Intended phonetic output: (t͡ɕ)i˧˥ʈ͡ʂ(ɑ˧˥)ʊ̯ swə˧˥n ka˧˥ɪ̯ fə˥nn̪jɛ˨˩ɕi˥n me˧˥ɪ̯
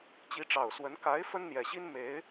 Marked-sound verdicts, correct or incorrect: correct, incorrect: ɑ˨˩

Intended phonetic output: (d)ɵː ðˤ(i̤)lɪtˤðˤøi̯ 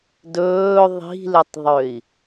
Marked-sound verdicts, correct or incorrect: correct, correct

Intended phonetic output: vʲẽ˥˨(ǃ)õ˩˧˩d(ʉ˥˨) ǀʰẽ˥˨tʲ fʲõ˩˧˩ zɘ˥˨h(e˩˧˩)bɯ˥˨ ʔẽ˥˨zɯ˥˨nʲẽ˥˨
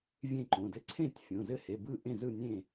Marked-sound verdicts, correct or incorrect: correct, incorrect: ɘ˥˨, correct

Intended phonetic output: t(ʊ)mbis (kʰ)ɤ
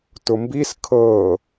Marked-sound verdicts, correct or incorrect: correct, correct

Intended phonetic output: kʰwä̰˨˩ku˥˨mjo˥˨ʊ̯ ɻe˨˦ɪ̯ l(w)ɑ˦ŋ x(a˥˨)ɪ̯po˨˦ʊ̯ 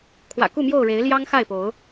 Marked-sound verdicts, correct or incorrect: incorrect: j, correct

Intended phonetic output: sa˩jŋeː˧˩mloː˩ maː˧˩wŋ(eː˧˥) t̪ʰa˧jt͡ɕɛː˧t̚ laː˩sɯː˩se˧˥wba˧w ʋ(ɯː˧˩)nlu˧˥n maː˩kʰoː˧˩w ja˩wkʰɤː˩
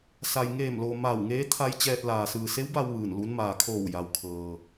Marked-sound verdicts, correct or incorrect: correct, correct

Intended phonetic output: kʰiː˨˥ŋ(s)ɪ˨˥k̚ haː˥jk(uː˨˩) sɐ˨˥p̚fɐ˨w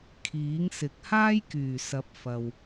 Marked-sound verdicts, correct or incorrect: correct, incorrect: yː˨˩

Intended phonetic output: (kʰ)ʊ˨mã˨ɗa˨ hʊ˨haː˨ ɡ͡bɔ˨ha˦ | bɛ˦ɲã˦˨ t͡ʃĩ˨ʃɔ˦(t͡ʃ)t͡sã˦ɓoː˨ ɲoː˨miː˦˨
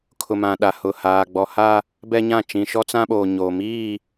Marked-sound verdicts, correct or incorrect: correct, incorrect: none

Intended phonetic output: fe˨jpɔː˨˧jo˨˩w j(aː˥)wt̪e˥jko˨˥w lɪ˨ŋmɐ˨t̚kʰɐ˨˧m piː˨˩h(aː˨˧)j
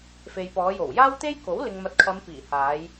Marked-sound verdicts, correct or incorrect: correct, correct

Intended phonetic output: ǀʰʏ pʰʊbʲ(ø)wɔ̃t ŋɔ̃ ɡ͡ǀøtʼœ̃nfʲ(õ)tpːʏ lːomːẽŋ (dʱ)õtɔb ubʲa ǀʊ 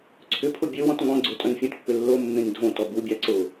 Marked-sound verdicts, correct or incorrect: correct, correct, correct

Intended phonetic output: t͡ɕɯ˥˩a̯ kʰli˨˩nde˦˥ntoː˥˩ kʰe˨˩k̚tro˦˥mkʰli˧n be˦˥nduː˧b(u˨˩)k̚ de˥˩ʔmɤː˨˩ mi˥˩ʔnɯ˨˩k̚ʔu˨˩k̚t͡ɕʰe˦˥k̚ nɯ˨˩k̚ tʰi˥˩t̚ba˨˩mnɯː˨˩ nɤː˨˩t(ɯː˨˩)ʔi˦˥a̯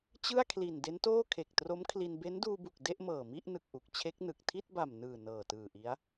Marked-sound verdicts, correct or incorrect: correct, correct

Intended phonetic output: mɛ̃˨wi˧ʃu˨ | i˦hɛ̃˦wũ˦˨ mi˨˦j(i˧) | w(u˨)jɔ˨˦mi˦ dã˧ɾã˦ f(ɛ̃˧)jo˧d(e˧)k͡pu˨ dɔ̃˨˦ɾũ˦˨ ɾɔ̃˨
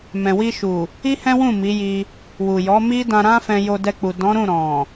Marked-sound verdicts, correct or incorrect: correct, correct, correct, incorrect: ɛ˧

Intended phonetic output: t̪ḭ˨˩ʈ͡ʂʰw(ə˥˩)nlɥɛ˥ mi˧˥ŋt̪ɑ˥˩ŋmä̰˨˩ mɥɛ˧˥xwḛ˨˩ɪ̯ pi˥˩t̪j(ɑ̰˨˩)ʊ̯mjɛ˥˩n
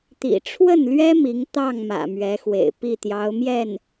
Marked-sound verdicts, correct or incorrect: correct, incorrect: ɑ˧˥

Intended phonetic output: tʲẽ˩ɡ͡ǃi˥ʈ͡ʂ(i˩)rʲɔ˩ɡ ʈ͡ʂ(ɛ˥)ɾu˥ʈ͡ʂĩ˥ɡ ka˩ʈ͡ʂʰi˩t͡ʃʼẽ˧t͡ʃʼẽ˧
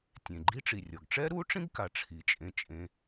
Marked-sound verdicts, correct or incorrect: correct, correct

